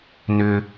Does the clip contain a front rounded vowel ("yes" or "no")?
yes